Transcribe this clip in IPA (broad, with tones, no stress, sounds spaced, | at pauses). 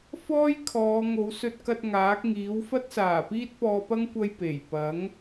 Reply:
f ɔː˥ j kʰ ɔː˨˧ ŋ o˨˧ w s ɵ˧ t̚ k ɐ˧ t̚ ŋ aː˨˥ k̚ ŋ iː˨˥ w f ɐ˥ t̚ s aː˨˩ p iː˥ t̚ p ɔː˧ p ɐ˥ ŋ kʷ ɐ˥ j p e˨˩ j p ɐ˨˥ ŋ